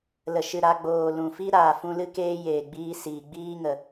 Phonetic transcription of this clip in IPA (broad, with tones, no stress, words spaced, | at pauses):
lə˨ʃɨ˨ɾa˧ɡ͡boː˨ lũ˨fi˦ ɾaː˨fũ˧lɨ˦ keː˦ jeː˨ɡ͡biː˧siː˨ ɡ͡biː˦ŋə˨